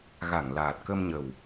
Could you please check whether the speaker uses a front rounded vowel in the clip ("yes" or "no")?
no